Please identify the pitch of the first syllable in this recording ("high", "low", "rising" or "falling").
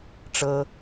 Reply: high